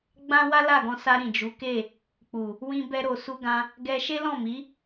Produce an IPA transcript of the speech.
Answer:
ɡ͡b ã˦ w a˦ l a˦˨ ɡ ɔ̃˧ s a˧ ɾ ĩ˨ d͡ʒ u˨˦ k e˦˨ | k͡p u˨ | w ĩ˧ b ɛ˧ ɾ o˨ s u˧ ɡ ã˧ | ɡ ɛ˧ ʃ e˦ l ɔ̃˦˨ m i˨˦

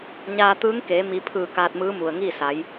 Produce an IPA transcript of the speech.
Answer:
ɲ aː˧ t̪ ɯː˧˥ ŋ k eː˩˧ m i˩˧ pʰ ɯː˧˩ k aː˧ t̚ m ɯː˧˥ m u˩ ə̯ ŋ iː˥˨ s a˩˧ j

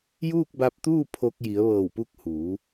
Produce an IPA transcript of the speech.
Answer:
j uː˥˨ k̚ b a˧ p̚ t̪ uː˥˨ pʰ o˧ k̚ j i˩˧ ə̯ ʋ ɤː˧˩ w p u˧ k̚ h uː˩˧

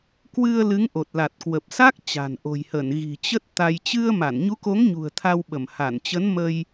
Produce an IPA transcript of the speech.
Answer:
k w ɨ˧ ə̯ l ɨ˨˦ ŋ ʔ o˨˩ t̚ l a˨˩ t̚ k w ə˨˩ p̚ s a˦˥ k̚ t͡ɕ a̤˨˩ n ʔ o̤˨˩ j h ə˧˩ n ɣ i̤˨˩ t͡ɕ ə˦˥ t̚ t̪ a˧ j t͡ɕ ɨ˧ ə̯ m a˧˩ n ɲ u˨˦ k o˨˦ ŋ ɲ ṳ˨˩ ə̯ t̪ʰ a˧ w ɓ ə˧˩ m h a˧˩ n t͡ɕ ə˨˦ n m ə˧ j

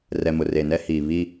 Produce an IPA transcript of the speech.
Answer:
r ɛ˨ m ʊ˨ r e˨ n ɛ˦ h iː˨ β i˦

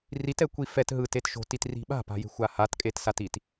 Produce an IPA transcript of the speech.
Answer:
r i t ɛ kʷ i f ɛ t ɦ ɯ t e t ʃ o̤ t i t r i̤ ɓ a̤ p a̤ j e̤ xʷ a h a t kʼ e t s a t i t

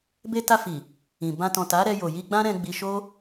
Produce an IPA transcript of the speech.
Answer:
b e˧ t a˧ f i˨ | ĩ˨ b ã˧ t ɔ̃˨ t a˨˦ ɾ ɛ˧ j o˨ j i˧ ɡ͡b ã˦ ɾ ɛ̃˧ ɡ͡b i˧ ʃ o˦

